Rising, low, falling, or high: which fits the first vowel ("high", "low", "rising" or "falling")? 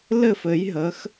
falling